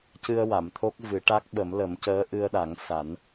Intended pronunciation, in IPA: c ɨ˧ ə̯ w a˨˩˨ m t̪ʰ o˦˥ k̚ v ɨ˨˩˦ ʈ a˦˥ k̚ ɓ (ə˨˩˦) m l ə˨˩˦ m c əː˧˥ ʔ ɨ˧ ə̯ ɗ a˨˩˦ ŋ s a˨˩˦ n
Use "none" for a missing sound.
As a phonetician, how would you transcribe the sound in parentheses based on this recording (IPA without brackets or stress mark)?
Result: ə˨˩˦